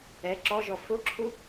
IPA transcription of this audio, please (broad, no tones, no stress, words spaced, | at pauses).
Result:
ɛ ǁɔʒɔ fʊǁʰu